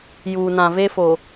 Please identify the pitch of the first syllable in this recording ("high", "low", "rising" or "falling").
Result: low